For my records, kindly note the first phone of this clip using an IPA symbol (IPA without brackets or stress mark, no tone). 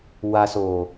w